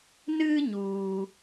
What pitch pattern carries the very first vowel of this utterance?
high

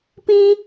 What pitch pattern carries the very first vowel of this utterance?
high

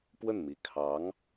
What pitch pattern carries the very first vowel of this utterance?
falling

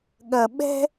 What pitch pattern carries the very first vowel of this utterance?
low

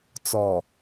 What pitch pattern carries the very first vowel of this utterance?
low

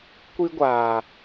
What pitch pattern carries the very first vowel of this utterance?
high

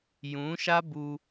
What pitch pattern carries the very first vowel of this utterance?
rising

